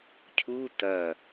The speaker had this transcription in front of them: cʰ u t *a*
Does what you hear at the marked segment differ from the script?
yes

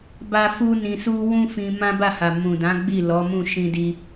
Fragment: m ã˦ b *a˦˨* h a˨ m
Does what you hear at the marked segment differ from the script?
no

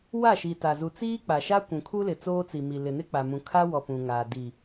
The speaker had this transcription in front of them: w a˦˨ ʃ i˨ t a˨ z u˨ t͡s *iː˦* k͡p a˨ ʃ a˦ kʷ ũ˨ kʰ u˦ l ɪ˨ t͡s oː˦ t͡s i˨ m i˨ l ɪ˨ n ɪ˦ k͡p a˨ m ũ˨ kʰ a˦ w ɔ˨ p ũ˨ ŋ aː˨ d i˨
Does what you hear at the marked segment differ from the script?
no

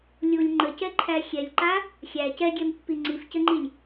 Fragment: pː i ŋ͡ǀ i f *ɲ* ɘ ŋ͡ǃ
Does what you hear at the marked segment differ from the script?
yes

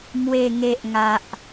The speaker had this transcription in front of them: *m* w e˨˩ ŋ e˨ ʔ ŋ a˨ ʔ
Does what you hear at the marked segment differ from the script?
no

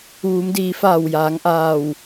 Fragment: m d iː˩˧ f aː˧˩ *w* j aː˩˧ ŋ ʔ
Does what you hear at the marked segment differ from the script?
no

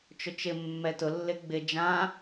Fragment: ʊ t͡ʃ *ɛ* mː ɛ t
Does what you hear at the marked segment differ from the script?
yes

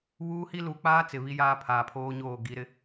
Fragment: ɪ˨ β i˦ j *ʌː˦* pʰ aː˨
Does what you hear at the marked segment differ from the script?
yes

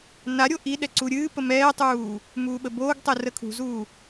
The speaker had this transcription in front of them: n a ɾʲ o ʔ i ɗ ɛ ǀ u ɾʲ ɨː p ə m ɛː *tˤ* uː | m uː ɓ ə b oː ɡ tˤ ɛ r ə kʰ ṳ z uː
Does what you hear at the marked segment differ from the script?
no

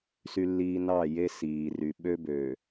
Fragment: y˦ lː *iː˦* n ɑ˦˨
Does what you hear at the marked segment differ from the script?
no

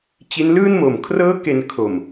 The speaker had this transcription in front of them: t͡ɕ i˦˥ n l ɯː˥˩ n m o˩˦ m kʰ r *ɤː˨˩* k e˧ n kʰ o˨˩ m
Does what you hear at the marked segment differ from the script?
yes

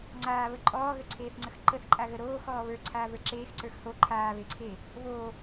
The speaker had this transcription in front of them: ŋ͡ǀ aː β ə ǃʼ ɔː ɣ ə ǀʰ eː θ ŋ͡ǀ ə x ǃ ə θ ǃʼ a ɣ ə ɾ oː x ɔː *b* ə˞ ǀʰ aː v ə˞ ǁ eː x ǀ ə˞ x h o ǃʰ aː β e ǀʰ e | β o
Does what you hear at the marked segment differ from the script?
yes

